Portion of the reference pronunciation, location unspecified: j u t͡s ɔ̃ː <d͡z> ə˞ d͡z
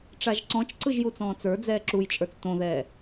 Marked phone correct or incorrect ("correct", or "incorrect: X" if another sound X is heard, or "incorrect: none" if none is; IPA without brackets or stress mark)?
incorrect: t͡s